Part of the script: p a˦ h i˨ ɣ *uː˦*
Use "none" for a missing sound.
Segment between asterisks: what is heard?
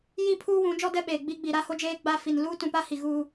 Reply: uː˦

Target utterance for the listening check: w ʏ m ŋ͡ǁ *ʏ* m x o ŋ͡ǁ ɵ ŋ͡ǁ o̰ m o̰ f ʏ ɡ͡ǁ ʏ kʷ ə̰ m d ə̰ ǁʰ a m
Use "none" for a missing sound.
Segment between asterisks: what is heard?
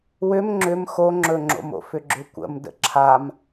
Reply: ʏ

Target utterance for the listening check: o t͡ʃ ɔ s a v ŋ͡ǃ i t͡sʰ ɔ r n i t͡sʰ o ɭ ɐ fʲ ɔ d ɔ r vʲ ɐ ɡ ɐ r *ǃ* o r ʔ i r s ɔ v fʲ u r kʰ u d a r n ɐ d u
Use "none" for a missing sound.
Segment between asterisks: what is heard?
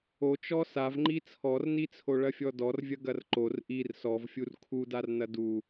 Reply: ǃ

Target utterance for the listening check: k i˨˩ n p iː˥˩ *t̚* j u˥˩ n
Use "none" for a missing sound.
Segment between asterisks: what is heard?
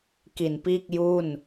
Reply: k̚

